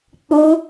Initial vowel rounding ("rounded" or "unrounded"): rounded